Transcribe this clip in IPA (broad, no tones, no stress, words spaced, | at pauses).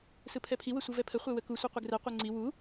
sɯpʰɛpʰi wəsʷɯvɛpʰə χʷɛwəku sʷiqʷəɡrɛ qʷɛŋ͡ǀi wu